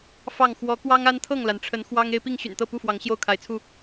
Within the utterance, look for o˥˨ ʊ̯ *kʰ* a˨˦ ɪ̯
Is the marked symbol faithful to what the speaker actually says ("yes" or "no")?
yes